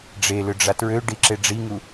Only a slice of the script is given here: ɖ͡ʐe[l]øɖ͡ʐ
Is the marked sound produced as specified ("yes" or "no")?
yes